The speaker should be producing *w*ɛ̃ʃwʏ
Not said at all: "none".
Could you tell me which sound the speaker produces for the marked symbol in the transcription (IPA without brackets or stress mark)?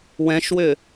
w